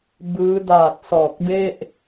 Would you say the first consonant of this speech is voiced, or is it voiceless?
voiced